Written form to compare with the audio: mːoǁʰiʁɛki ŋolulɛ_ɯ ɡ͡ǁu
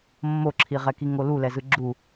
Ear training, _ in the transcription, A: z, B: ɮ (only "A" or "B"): A